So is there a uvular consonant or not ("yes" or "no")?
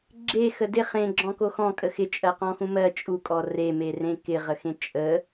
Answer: yes